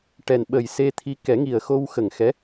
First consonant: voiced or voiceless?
voiceless